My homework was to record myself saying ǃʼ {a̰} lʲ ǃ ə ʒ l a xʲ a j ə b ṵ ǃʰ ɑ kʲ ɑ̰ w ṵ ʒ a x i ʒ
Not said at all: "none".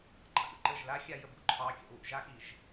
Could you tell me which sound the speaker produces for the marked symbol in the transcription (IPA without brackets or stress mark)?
a̰